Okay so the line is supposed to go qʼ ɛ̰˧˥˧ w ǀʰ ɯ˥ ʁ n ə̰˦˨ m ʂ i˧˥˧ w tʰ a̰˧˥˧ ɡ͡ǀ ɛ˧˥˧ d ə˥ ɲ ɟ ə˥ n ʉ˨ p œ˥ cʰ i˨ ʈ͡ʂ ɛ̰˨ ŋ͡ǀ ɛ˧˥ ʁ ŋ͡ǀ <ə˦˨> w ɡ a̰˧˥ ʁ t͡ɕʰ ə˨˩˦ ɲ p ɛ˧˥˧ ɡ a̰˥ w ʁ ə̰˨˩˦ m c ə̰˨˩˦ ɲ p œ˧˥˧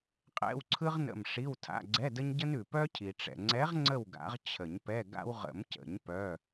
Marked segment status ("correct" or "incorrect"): correct